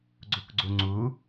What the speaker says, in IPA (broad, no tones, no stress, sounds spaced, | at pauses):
ɡ͡ǀ u k ɡ͡ǀ u ŋ͡ǀ u